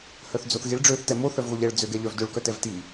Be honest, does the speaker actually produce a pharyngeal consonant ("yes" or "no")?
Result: no